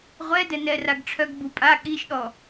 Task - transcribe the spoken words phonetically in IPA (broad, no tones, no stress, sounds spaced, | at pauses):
ʁʷ ɛ d ɛ n ɛ r a ɡ ʈ͡ʂʰ œ ɡ b u pʼ a ɠ i ʃ ɗ ɔ